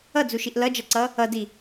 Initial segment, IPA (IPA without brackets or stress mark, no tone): ʌ